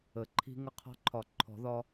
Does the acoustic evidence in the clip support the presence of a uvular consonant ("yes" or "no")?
yes